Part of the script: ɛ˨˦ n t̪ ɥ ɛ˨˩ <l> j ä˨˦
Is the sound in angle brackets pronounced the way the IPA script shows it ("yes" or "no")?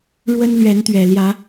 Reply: yes